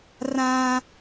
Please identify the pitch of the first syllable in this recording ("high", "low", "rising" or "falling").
high